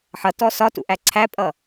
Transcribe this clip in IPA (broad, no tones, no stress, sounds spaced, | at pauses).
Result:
ħ ʌ t ɔ s ɒ t ṵ ʔ æ ǀʰ æ pʼ ʌ